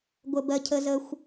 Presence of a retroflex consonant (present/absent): absent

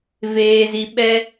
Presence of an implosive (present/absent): present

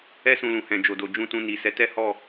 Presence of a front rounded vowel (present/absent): absent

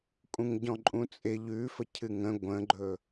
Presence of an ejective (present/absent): present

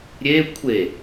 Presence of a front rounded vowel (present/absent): absent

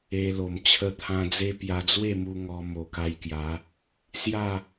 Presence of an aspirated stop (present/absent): present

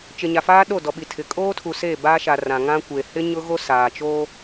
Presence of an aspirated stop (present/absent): present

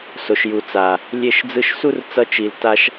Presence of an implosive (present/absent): absent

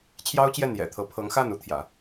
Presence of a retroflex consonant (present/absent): absent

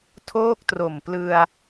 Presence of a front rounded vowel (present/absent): absent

